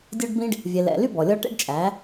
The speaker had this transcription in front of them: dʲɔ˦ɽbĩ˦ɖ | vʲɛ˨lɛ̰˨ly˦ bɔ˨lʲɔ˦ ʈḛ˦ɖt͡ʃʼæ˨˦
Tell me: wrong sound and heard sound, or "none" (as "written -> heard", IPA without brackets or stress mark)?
ɽ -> ɖ